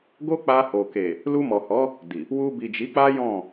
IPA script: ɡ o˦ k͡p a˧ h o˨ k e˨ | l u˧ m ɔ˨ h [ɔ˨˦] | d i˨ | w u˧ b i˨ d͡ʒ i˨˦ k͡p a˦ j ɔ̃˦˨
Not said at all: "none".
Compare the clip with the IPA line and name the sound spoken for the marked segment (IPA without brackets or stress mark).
ɔ˨˦